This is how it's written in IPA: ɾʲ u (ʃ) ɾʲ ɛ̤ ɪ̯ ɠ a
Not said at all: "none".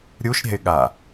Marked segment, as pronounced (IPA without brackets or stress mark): ʃ